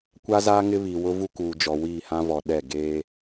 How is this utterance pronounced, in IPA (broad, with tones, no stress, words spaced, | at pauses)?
kʷa˦zaː˦ ŋɪ˦βi˨ wʊ˦ vu˦kuː˨d͡ʒɔ˨ wiː˦˨hã˦vɔ˨ ɗɛ˦˨ ɡeː˦